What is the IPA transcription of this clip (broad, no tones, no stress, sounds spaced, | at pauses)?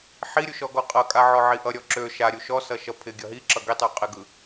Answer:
ħ i ɾʲ u ʃ ɔ ɡ ɔ qʼ ʌ kʼ a ʕ ɔ ʕ i ʔ ʌ ɾʲ ɔ ǁ ø ʃ a ɾʲ u ʃ ɔ s ʌ ʃ ʌ pʰ ɪ ɡʲ ʌ ɦ i ǁ ʌ ɡ i tˤ u qʼ ɪ ɡ ɯ